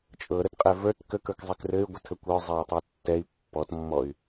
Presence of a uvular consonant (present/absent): present